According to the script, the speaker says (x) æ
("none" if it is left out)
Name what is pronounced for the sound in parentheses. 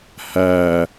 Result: h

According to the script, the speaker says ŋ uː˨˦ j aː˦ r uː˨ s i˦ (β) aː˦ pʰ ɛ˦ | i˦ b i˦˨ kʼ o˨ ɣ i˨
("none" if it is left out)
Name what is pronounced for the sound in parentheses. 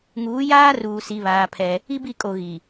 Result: β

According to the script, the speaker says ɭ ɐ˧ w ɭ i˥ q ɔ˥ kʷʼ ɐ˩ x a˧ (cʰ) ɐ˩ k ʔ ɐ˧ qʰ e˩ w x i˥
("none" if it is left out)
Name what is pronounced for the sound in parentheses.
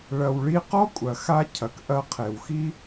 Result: cʰ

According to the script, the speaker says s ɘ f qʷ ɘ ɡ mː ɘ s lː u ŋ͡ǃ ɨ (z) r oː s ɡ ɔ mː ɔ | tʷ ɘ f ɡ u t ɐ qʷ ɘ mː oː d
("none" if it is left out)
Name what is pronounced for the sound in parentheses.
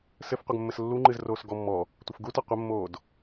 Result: z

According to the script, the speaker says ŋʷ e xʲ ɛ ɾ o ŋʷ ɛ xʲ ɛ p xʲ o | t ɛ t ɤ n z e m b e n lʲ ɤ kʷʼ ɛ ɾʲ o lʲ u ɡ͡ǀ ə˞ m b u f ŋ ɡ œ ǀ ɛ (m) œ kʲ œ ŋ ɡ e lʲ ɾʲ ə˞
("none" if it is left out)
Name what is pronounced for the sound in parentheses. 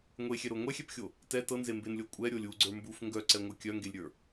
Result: ŋʷ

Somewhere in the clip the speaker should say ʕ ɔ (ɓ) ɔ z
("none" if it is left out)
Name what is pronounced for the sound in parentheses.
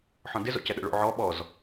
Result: ɓ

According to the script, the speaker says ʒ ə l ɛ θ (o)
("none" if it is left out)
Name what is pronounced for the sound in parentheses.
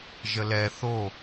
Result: o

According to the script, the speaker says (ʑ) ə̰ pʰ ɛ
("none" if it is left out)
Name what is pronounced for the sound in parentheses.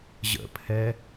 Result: ʑ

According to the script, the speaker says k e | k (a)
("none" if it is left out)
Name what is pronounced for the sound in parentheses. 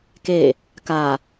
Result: a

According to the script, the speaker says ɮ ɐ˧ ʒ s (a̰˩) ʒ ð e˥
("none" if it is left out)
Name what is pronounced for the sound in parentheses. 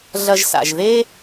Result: a̰˩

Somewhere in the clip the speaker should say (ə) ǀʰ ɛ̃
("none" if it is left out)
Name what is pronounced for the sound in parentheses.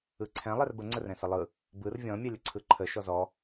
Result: ɯ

